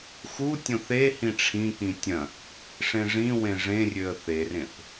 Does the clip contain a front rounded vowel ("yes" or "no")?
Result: yes